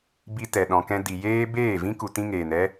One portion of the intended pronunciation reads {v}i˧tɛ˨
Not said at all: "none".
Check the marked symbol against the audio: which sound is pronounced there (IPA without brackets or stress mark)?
b